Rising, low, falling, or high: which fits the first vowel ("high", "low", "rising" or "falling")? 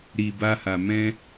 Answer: low